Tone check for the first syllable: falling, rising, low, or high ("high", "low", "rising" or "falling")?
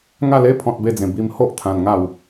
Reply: falling